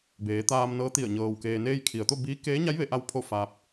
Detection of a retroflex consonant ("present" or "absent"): absent